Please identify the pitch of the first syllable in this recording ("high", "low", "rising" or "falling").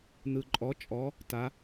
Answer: low